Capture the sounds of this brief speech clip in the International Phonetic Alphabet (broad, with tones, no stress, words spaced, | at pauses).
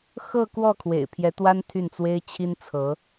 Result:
xɤ˥˧kwɔ˥˩ kʰwḛ˨˩ɪ̯pʰjɛ˧˥t̪wa˥n t̪ʰy˥˩nt͡swe˥ɪ̯ t͡ɕʰi˥nt͡sʰɤ˧˥